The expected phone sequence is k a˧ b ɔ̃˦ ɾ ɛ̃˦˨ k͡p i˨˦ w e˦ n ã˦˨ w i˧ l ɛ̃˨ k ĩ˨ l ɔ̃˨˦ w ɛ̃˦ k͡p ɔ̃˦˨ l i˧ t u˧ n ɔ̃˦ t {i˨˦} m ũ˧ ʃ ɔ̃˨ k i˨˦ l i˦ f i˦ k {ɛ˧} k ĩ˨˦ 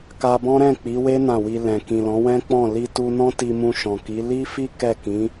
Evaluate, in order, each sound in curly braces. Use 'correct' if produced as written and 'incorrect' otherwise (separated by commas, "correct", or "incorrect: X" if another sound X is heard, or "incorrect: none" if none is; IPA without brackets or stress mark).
incorrect: i˧, incorrect: ɛ˦˨